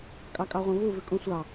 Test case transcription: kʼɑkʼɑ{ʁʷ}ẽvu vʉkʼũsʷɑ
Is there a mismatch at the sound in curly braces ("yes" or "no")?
no